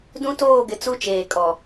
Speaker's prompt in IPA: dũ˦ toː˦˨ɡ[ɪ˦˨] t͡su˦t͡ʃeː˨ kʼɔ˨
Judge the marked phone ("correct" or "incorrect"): incorrect